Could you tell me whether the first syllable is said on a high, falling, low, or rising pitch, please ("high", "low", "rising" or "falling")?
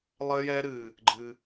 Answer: high